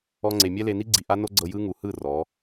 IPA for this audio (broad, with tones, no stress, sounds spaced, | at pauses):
ɔ˧ ŋ͡ǀ e˨ mʲ ɛ˦ l e˧ n i˦ ɡ͡ǀ i˨ ʔ a˦ n o˦ ɡ͡ǀ ɤ˧ j ɯ˦ ŋ u˨ h ɯ˦˨ r ɔ˨˦